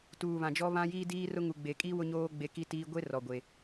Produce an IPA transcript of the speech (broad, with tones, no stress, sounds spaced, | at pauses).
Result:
t uː˨ β ã˨ d͡ʒ ɔ˦ β ã˦ j iː˦ d iː˦ r ʊ˦ ŋ u˨ ɡ͡b e˨ kʼ iː˦ w ʊ˦ ɲ oː˦ ɡ͡b e˦ k i˦ t iː˦ ɡʷ e˦ r ɔ˨ ɡʷ e˨